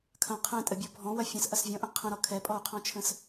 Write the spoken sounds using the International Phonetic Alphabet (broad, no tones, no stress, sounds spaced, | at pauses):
kʰ ɐ̃ qʰ ɛ̃ tʼ ə bʲ ɔ bʱ ɔ̃ w ɐ fʲ ə̃ s ʔ ɐ s vʲ ɔ̃ ʔ ə̃ qʰ ə̃ ɾ ɔ kʰ ɛ pʼ ɔ u̯ qʰ ɔ̃ t͡ʃʰ ə̃ s